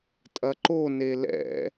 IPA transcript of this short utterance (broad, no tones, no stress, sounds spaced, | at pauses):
tʼ ɐ ǃ o n e l ɛ̰